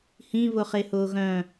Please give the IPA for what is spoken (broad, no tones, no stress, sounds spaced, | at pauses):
h ĩ β ʊ χ e h ʊː ɣ œ̃